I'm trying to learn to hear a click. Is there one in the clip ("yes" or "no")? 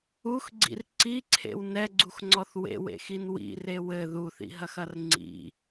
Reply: yes